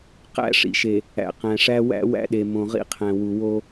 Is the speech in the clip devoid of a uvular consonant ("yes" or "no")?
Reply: no